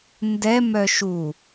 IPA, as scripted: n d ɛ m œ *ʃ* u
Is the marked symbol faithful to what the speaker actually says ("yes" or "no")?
yes